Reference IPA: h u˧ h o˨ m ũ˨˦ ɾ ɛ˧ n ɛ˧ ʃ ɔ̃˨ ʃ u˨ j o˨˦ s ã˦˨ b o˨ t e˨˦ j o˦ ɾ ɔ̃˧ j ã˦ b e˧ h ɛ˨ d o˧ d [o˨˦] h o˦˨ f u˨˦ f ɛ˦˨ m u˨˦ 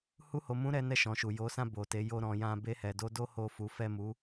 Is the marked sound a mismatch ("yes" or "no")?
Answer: yes